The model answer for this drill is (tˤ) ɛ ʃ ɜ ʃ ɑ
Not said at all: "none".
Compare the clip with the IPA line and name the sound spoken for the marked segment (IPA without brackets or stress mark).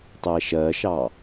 tˤ